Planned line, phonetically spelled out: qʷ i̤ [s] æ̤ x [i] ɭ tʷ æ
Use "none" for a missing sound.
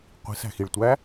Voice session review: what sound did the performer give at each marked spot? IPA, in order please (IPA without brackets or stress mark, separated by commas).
s, i